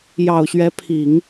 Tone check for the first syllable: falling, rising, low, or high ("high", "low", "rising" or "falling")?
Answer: low